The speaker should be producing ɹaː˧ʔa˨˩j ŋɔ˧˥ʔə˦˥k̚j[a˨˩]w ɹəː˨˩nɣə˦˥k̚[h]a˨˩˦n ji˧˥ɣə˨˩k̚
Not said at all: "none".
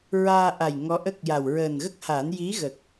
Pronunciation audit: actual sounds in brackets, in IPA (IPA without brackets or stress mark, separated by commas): a˨˩, h